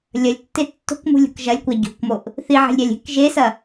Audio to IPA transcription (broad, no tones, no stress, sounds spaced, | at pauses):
lʲ ɐ lʲ tː e tː o̤ k m ṳ lʲ ṳ k ʒ ɐ lʲ kʷ a ɟ o̤ k m o ʔ | θ i ʕ e̤ lʲ ɾʲ a lʲ e̤ k ʒ e s ɐ